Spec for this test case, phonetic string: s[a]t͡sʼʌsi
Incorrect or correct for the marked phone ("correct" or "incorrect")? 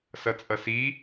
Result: incorrect